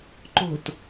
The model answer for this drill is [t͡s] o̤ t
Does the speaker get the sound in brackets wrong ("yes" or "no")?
yes